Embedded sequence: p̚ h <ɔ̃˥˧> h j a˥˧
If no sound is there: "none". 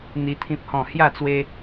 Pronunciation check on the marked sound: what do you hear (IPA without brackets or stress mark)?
ɔ̃˥˧